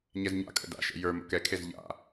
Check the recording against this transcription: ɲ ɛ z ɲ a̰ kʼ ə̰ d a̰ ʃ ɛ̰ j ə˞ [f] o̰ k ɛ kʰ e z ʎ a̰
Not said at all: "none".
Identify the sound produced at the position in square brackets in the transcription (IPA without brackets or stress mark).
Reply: m